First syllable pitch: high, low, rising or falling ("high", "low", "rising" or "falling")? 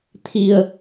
low